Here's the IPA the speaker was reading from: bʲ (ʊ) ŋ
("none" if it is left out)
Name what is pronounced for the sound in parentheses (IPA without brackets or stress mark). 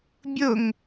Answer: ʊ